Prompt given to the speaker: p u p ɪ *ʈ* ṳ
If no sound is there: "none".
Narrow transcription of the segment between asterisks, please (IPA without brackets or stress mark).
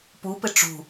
ʈ͡ʂ